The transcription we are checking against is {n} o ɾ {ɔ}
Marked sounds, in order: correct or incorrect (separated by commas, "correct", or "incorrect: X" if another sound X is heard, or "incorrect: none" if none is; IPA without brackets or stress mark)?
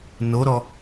correct, correct